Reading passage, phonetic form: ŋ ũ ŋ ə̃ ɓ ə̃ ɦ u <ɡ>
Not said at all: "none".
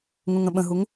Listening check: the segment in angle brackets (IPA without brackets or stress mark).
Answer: ŋ